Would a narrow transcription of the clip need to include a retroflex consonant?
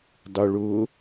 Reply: yes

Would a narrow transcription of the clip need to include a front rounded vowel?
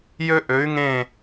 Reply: yes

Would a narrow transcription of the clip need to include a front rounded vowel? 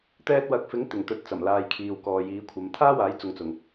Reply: no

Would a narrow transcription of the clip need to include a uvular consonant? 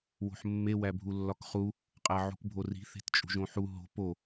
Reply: yes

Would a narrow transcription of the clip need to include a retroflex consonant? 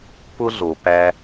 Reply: no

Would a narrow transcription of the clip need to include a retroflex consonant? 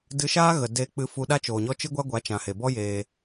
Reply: no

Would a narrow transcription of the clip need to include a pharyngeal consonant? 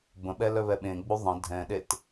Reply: no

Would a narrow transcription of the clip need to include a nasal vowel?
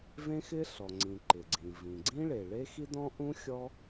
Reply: yes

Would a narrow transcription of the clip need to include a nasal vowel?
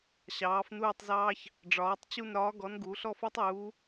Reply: no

